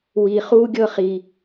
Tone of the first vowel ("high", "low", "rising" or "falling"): high